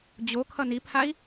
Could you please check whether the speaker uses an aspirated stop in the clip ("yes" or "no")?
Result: yes